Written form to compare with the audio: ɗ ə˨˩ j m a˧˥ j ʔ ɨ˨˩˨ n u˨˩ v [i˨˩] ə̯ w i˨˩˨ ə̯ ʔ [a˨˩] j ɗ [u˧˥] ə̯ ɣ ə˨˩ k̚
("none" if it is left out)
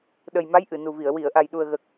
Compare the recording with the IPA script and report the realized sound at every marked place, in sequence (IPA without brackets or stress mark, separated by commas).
i˨˩˨, a˨˩, u˨˩